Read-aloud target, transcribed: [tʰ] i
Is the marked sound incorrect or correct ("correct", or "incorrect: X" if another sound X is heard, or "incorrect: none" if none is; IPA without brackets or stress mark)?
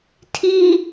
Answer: correct